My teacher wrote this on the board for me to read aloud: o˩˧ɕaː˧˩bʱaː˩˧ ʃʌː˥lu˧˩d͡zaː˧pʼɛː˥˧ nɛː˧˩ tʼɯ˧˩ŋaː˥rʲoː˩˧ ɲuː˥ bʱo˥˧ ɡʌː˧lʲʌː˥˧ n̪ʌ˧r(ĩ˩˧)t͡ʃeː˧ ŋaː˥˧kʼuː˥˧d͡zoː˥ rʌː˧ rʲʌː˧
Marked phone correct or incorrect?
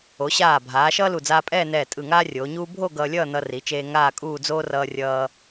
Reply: incorrect